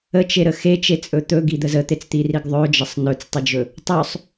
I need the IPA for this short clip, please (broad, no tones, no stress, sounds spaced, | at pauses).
ə t͡ʃ e ɾ ə x e t͡ʃ e t͡sʼ ɵ t̪ ɵ ɡ i d̪ ə z ə t̪ e t͡s t̪ i r i ɡ ðˤ ɵ d͡ʒ ə sˤ n ɵ t͡s tˤ i d͡ʒ ɵ | tˤ ɵ sˤ